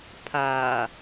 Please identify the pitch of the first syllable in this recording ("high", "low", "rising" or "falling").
low